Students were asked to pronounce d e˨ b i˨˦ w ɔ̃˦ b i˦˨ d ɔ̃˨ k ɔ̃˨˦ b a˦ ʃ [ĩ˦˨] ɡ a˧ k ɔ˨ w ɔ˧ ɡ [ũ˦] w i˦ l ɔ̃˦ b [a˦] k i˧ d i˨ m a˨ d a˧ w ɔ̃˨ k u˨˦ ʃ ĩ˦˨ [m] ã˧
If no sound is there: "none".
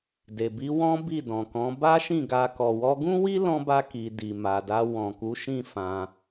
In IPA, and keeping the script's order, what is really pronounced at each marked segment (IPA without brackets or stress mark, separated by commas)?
ĩ˦˨, ũ˦, a˦, f